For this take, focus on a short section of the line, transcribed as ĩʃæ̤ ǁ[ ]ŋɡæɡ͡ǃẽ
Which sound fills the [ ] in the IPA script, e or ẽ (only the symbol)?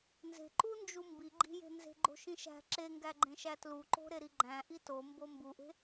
e